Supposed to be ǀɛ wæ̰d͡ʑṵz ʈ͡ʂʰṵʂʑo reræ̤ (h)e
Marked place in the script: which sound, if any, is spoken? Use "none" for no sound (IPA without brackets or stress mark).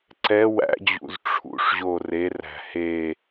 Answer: h